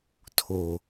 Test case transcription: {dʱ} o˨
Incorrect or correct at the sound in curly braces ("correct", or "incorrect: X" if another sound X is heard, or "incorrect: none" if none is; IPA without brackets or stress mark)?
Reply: incorrect: tʰ